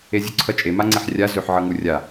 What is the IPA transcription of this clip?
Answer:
e zʲ u ǀʰ ʌ t͡ʃʼ e m a ŋ͡ǀ e ħ rʲ a z ø ħ ʕ ʌ ŋ u rʲ a

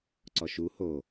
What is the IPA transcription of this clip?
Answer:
ǀ ɔ ʃ u h o

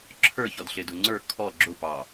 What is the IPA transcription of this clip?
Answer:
ǁʰ ə˞ ç ɔ d ɬ ɪ d ʊ ŋ͡ǀ ə˞ kʰ ɔ ɡ͡ǁ ʊ p ɑ

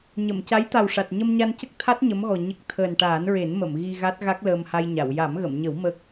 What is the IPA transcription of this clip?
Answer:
ɲ ə˨˩˨ m c a˧˥ j t̪ a˨˩ w ʂ a˨˩ t̚ ɲ ə˧ m ɲ a˧ n c ə˦˥ k̚ t̪ʰ a˦˥ t̚ ɲ ə˧˥ m ɣ ɔ˨˩ ɲ ə˦˥ k̚ t̪ʰ əː˨˩ n ʈ aː˨˩˦ n ɹ e˨˩˦ n m ə˨˩˨ m ɣ i˧ ɣ a˦˥ t̚ ɣ a˦˥ k̚ l əː˧ m h a˧ j ɲ a˨˩˨ w j a˨˩˦ m ɣ ə˨˩˨ m ɲ ə˨˩˦ w m ə˦˥ k̚

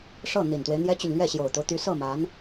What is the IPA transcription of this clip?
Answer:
ʂ ɤ˥˩ n̪ i˨˩ n t̪ w e˦ ɪ̯ n̪ j ɛ˥ t͡ɕ y˨ n l ɥ ɛ˥˩ ɕ j o˨˩ ʊ̯ t̪ o˦ ʊ̯ t̪ y˧˥ s ɤ˥˩ m a˧˥ n

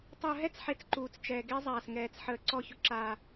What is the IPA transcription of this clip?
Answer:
tˤ ʊː˨ ɦ ɛ˦ t͡s ħ e˨ t͡s ǃ uː˨ t͡s t͡ʃ ɛː˨ ɡ e˦ zˤ aː˨ s ŋ ɛː˨ t͡s ħ əː˨ ǀ ɔ˦˨ ç ʊ˦ ǁ aː˦

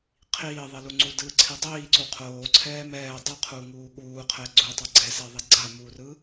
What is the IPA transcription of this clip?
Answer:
qʰ iː ðˤ i l u ŋ͡ǀ u d ɯ ǀʰ i dˤ iː ǀ u qʰ oː ǀʰ ɛː m ɛː dˤ ɯ qʰ uː ŋ uː ɠ uː qʰ ɛ ɡ͡ǀ u tˤ ɛ ɡ͡ǀ ɛ s ɛ ðˤ i ɡ͡ǀ a m uː r ɯ

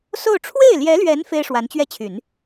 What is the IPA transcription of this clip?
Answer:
s o˥˧ ʊ̯ ʈ͡ʂʰ w e˥˩ ɪ̯ l j ɛ˧˥ l ɥ ɛ˧˥ n f e˥ ɪ̯ ʂ w a˧˥ n t͡ɕ ɥ ɛ˥˩ t͡ɕʰ y˨˩˦ n

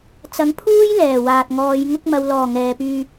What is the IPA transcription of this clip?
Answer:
t͡s ɐ˨˥ ŋ pʰ uː˥ j l ɛː˨˩ w aː˨ t̚ ŋ ɔː˨˧ j ŋ ʊ˧ k̚ m ɐ˨ w l ɔː˨˩ ŋ ɛː˨ p yː˧

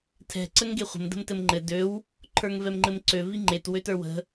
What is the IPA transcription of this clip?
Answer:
tʰ ɛ̤ ǀ ə ŋ ɡ e χʷ ə̤ m d ə̤ m t ɘ m ŋ͡ǃ ɘ d ø w | ǃʰ ə˞ ŋ v ɛ m ŋ͡ǃ ɘ m ǀ ø v i ŋ͡ǃ e t w ø t ə˞ w ə̤

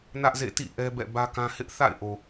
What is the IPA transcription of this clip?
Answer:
n ä˦ ʔ z ḛ˦˨ t ḭ˦˨ ʔ ɛ˦ b ɛ̰˦˨ b ä˦ k ã˦ h ɪ˦ ʔ θ a̰˦˨ ɪ̯ ʔ o˨

